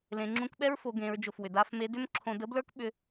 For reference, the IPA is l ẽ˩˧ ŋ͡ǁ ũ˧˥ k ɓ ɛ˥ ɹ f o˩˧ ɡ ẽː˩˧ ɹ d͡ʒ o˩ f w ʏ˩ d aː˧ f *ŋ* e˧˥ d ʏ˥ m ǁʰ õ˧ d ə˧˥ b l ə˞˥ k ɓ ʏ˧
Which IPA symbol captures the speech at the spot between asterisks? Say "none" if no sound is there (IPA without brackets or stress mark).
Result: m